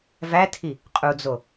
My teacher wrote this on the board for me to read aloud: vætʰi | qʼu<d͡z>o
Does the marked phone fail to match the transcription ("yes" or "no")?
no